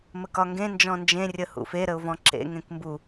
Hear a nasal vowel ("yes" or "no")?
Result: yes